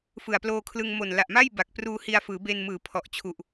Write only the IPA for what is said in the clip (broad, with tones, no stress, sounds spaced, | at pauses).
f ɯ˨˩ a̯ p l oː˧ kʰ l ɯ˧ ŋ m o˨˩ n l a˨˩ ʔ m a˥˩ j b a˨˩ k̚ p r uː˧ h i˧ a̯ f ɯː˩˦ b e˧ n m ɯː˩˦ pʰ ɔ˨˩ ʔ t͡ɕʰ u˨˩ ʔ